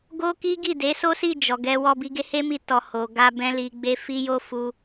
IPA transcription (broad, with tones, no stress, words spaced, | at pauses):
ɡo˦ki˦ ɡi˦˨de˨˦so˦si˦˨ d͡ʒɔ˨ɡɛ˧wɔ˧ bi˧ɡe˦he˦mi˧ tɔ˨ho˨ɡa˧ bɛ̃˦li˧ɡ͡be˦ fi˦jo˦fu˧